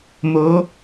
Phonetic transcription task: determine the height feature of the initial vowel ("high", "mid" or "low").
mid